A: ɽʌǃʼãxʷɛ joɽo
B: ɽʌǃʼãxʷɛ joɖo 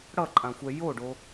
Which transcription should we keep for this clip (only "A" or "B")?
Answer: B